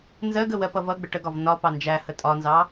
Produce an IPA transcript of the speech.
nzɜɡə wɜpʌvʌɡ͡bə ʈəɡɒv nɒ pɑnd͡ʒæhə tʼɒnzɑ

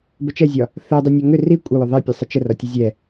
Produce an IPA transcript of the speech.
bət͡ʃɛzʲɒ | θɛdˤi nʲɒŋʏ ri kʷʼəwʏ ðˤɛpʲɛ sˤət͡ʃərɒ tʲəzʲɛ

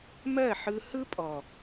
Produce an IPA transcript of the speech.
mɜ˦˨ħɯ˧ hɯ˦pʼɔ˨

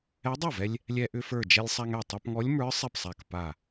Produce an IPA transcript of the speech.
ɛ˧˥dˤa˥˩vɛ˧lʲ | lʲɛ˧ʔʏ˧ fə˞˧˩ d͡ʒɛ˧lʲsˤa˧ŋɛ˧˩ tˤa˧pŋɔ˧˥lʲmə˞˧˥ sˤɛ˥˩psˤa˧˩kpa˧˩

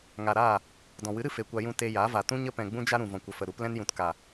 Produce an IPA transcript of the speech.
ŋa˨ɾaː˦˨ | dɔ̃˨wɨ˨˦ɾɨ˧ fe˨kʷa˧jũ˧ te˧ja˨˦va˨ tũ˦ɲə˦pɛ̃˨ ɡ͡bũ˦d͡ʒa˦ɾũ˨ vɔ̃˨kʷə˨fə˨ɾu˨˦p lɛ̃˧njũ˨tka˨

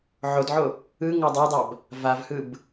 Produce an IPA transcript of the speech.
ʕodʕo | ɯ ŋodˤadˤab | vavhɯb

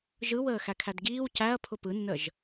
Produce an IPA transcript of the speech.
ʒɯwəː xækʰædɡiːw cæɐ̯ pʰʊpɯnːəʒ

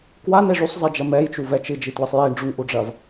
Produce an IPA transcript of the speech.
kwane ʐusˤzˤed͡ʒɐ mɛjt͡ʃuvɛ t͡ʃɨd͡ʒitlɨsˤ jeɳɖ͡ʐuŋʔuɖ͡ʐɐv

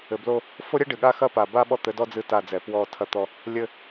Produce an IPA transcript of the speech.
ɘ˨blo˦ | fo˦ɾʲɛ˦ɖɨ˨ɠa˦ xɐ˦pa˨ ba˦ ɓɔ˦t̪ɘ˨˦dɔ˦ d͡zɨ˦ta˦˨d͡zɛ˨ pwɔ˦˨ tʰɐ˦t̪ɔ˦ | lʲɘ˦

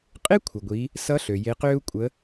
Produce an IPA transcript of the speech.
qʼe˥kʷʰə˩ɡʷiː˩˧ | sʌ˧˥ɬø˩ je˩˧qøː˧u̯kʷʼəː˩˧

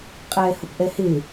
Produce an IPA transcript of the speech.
qʼɛːhʊpʔɛhɪ

